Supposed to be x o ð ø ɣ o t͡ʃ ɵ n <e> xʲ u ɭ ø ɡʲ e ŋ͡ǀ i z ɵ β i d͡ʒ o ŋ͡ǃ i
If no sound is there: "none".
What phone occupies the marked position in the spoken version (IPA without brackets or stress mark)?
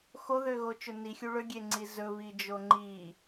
i